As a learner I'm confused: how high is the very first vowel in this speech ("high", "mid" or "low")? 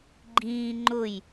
high